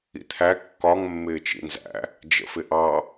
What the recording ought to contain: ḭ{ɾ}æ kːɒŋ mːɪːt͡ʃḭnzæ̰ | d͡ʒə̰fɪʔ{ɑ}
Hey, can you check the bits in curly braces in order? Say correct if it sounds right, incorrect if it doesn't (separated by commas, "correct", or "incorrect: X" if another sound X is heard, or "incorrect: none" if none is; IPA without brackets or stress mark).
incorrect: t̪ʰ, correct